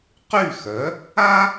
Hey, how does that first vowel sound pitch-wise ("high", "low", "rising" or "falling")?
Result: falling